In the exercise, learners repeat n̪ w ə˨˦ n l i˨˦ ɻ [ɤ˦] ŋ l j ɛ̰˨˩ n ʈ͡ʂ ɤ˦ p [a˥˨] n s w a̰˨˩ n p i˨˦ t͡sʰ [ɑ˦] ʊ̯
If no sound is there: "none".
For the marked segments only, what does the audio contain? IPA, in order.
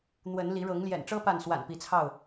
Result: ɤ˨˦, a˥˨, ɑ˥˨

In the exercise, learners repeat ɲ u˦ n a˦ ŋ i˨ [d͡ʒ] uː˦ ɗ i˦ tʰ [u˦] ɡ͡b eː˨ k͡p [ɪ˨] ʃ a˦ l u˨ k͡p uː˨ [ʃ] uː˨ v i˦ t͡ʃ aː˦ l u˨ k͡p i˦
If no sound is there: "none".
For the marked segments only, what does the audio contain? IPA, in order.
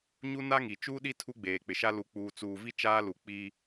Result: t͡ʃ, u˦, ɪ˨, t͡s

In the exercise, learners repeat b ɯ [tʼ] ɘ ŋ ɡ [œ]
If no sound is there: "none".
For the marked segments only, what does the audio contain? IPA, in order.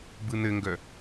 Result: n̪, œ

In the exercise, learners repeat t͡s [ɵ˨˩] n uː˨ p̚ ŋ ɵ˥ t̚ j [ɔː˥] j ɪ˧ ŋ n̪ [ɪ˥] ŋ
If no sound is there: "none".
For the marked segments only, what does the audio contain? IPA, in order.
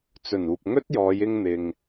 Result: ɵ˨˩, ɔː˨˧, ɪ˨

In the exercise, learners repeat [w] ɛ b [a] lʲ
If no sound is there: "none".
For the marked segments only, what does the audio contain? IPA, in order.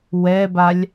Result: w, a

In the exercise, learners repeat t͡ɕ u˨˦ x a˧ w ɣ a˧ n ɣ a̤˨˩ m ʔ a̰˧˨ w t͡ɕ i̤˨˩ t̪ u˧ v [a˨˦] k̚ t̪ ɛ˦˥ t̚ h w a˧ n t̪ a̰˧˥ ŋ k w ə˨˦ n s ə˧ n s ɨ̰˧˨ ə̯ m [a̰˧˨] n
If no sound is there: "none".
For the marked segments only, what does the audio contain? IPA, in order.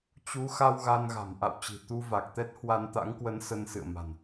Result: a˨˩, a̤˨˩

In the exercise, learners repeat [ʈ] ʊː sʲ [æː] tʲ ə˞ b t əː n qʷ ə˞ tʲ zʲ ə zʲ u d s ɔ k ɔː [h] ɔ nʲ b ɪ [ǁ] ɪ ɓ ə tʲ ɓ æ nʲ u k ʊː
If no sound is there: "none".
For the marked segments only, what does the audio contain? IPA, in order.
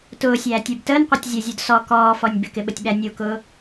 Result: t, æː, f, k

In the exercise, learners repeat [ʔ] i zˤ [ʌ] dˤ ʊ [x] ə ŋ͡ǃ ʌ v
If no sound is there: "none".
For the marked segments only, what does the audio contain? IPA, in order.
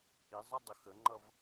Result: ʔ, ʌ, x

